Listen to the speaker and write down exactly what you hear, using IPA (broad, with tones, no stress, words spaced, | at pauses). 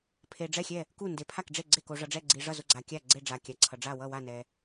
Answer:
pʰe˨ɖ͡ʐɛ˦˨xʲɛ˦˨ | ku˦˨ nde˨pʰa˦˨kɖ͡ʐe˦˨ ɡ͡ǀe˦˨ ko˨ʐʌ˨ɖ͡ʐɛ˦˨ ɡ͡ǀi˨ʐʌ˦˨zo˦˨ɡ͡ǀa˨ kʲa˦˨ɡ͡ǀe˦˨ɖ͡ʐa˨ kʲa˨ǀʰʌ˨ɖ͡ʐa˦˨ wʌ˦˨wa˦˨nɛ˨